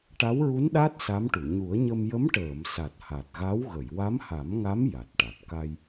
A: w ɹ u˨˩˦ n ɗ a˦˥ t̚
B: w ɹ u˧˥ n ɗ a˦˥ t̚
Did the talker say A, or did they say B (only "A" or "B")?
B